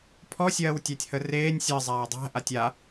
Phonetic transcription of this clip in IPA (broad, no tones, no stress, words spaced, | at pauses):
pʰɔsʲɜːwtʲætʲhə reːnʲ sʲɜzˤaː dˤæ̤ ʔatʲa